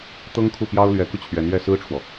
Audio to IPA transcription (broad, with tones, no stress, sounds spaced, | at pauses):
t̪ ɤ˥ ŋ kʰ u˥˩ p j ɑ˥ ʊ̯ l ɥ ɛ˧˥ k u˧ t͡ɕʰ ɥ ɛ˧˥ n ɥ ɛ˥˩ s ɹ̩˥ ʈ͡ʂʰ w ɔ˨